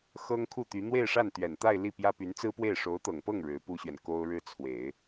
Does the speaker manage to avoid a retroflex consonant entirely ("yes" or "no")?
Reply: no